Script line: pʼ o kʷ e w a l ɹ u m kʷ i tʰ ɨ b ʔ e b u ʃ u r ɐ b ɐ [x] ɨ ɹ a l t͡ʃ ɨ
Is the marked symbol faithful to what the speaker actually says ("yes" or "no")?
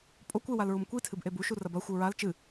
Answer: no